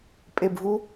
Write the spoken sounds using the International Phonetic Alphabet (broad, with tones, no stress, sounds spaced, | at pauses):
pʼ e˦˨ b v u˥